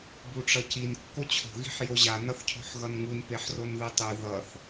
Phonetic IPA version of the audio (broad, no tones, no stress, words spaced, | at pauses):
buʈ͡ʂʌcin kːot͡ɕʰo̤ ɣi̤ħjoʑa nʌθcʰo̤ħɣʌnŋun peħronðɯtˤɯ ðʌθ